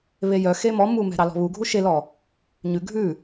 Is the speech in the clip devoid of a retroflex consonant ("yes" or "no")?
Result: yes